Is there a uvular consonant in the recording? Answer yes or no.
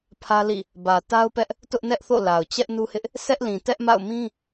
no